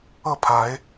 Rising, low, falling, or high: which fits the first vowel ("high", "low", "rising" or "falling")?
falling